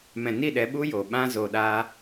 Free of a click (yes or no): yes